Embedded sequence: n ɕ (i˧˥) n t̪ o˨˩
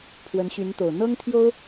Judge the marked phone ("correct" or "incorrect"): incorrect